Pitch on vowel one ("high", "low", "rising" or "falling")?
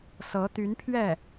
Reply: rising